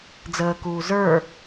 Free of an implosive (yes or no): yes